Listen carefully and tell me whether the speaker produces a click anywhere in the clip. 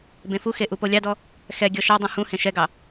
no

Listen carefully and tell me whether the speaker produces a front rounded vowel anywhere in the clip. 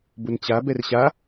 no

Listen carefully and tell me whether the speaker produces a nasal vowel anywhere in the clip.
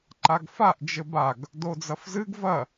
no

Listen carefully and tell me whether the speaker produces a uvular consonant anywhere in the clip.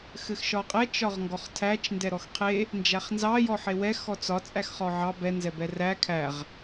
yes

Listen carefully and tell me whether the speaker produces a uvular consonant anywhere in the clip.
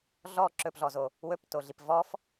no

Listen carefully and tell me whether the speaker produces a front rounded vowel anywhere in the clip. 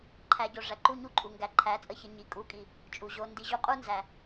no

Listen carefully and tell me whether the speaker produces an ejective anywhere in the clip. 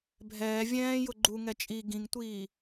yes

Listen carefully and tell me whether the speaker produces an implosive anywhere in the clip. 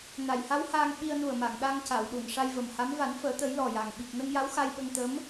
yes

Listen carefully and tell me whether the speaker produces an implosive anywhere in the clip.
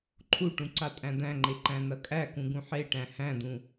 no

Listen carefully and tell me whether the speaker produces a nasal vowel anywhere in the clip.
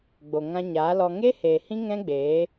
yes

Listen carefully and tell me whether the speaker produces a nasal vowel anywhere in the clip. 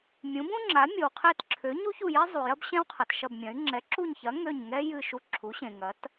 yes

